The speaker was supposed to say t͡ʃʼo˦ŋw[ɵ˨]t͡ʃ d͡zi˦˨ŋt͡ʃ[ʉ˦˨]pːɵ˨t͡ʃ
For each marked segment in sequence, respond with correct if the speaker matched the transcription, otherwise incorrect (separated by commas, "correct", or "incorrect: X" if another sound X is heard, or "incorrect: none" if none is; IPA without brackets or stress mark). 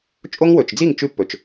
correct, incorrect: ʉ˧